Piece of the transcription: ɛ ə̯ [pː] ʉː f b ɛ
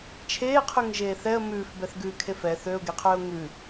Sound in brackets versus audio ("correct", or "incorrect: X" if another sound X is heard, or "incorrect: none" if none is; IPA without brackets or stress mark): incorrect: m